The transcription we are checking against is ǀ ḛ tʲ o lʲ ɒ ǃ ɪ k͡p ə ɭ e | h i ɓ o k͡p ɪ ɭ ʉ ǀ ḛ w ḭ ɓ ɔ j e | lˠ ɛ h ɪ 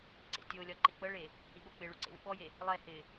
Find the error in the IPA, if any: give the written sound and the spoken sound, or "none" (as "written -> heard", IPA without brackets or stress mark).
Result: none